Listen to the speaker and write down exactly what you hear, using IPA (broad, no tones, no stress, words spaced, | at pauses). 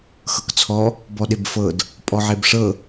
xɤkt͡sʰɔ | bɔɗebfɤd | pʼɔʕebʂɤ